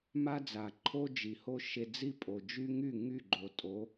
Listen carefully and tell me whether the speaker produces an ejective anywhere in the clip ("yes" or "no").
yes